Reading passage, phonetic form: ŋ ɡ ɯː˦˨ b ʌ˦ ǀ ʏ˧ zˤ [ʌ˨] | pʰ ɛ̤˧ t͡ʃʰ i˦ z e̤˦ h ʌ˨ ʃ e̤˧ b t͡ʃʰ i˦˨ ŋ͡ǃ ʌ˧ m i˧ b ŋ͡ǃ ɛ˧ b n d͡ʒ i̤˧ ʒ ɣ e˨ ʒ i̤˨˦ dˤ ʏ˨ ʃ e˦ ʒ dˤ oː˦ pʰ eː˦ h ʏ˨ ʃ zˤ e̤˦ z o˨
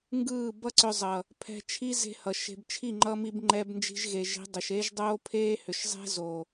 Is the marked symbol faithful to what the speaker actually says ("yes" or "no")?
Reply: yes